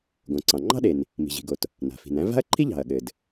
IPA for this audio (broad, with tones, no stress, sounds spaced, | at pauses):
ɡ õ˩ ǀ ɑ̃˩ ŋ͡ǃ ɑ̤˥ ɗ e˩ n | m i̤˩ ʑ i̤˩ ɡ o˩ t | n a̤˩ f i̤˩ n æ̃˥ v a̤˥ ɐ̯ ǃʰ i˥ ʎ ɑ̤˩ ɐ̯ ɠ ɘ˩ d